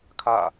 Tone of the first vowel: falling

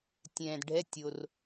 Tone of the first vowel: low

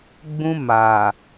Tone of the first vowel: high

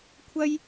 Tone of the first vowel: high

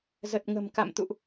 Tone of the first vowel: low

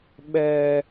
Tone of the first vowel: high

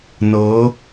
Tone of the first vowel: rising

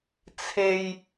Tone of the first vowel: low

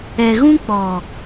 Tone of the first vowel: low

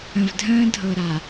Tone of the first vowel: low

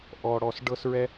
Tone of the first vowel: low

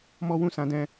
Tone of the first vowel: high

